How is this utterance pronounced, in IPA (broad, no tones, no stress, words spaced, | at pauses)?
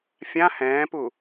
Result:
fʲã hɛ̃ːpu